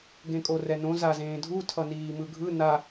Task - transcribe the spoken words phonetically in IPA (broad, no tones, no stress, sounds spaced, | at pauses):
ɡ ẽ kʼ o r ɛ n õ z a z ẽː dʱ u tʰ ʌ n iː m ɯ ɡʱ ɯ n a